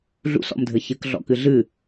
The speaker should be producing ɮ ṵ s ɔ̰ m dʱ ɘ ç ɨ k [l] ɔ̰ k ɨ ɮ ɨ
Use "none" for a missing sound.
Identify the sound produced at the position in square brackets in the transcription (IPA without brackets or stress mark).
ɮ